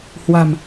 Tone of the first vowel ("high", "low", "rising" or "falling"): low